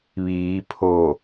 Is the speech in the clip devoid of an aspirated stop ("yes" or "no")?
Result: no